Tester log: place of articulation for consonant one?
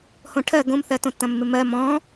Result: glottal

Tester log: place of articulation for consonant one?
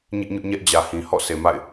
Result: palatal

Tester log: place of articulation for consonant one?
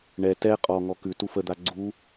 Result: retroflex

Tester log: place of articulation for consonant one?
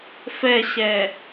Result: labial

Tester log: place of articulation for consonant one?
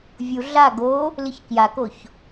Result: labial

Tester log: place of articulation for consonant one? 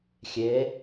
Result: velar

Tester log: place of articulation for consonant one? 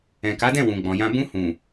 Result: velar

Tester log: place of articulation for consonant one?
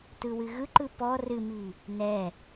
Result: alveolar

